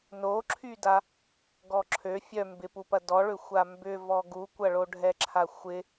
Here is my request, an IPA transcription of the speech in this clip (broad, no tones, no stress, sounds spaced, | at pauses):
n o ǁʰ y d a | ɡ ɔ ǁʰ ø fʲ œ m b ɪ p u p ɐ d ɔ ɭ ʏ xʷ a m b ʏ v ɔ ɡ u kʷ ɐ ɭ o ɖʱ ɛ ǁʰ a xʷ ɪ